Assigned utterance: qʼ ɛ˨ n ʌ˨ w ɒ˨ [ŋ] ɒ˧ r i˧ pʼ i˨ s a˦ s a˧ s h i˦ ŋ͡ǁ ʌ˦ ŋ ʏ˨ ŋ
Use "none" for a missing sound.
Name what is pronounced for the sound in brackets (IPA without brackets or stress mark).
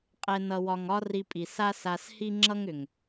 ŋ